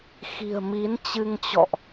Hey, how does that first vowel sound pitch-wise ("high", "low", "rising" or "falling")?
low